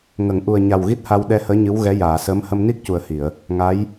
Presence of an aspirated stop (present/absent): absent